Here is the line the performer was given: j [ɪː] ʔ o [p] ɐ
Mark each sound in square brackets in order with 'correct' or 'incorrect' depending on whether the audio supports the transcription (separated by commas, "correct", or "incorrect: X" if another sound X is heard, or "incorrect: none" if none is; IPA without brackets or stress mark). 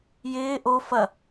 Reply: correct, incorrect: f